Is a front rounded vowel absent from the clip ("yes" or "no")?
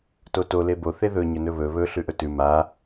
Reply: yes